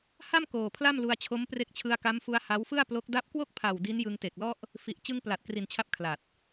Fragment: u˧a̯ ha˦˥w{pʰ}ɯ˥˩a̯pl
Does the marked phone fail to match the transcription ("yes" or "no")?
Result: yes